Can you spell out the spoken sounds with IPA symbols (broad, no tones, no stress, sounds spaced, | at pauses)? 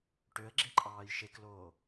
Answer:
ʈ ø ə̯ ɡ͡ǁ e ǃʼ ɑː j ʃ e k l oː